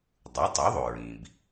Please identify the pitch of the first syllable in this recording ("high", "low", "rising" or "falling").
rising